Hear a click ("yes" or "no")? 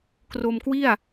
no